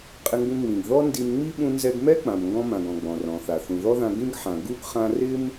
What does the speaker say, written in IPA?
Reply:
qʼɪ˧ŋɡũ˧ ŋ͡mĩ˩ɡ ðɔ˥ndi˧mŋ͡mi˥ ɓũ˧nzɛ˧ɡmɛ˥ k͡pã˩mŋɡɔ̃˧ mã˩ɡɔ̃˩ ɡ͡bɔ̃˩rɔ̃˩θa˩ θũ˩ðɔ˥ðã˧ ɡĩ˥ɡħã˩ ɡu˥ɡ χã˧rɪ˥m

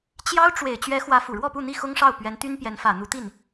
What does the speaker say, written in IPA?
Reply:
t͡ɕjɑ˥ʊ̯ ʈ͡ʂwe˨˩ɪ̯ t͡ɕɥɛ˧˥xwä˧˥ fu˨˩ɻwɔ˥˧pu˥˧n̪i˥˩ xʊ˥ŋʂɑ˥˩ʊ̯ pɥɛ˧˥nt̪y˥npjɛ˧˥n fä˨˩ n̪u˧˥t̪i˥˩n

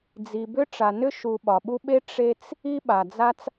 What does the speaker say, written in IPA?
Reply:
d͡zi˨bʏ˥ ʈ͡ʂa˨nʏ˥ ʃu˨ ɓɒ˩ɓu˦ɓe˥ ʈ͡ʂe˦t͡s | i˦ɓa˩d͡za˦t͡s

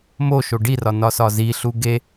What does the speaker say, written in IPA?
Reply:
moʃo ɖirɒnɒsɒ ziɬu ɡe

